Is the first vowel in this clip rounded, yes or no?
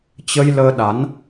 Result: no